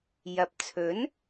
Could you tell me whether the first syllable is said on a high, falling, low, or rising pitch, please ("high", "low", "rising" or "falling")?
low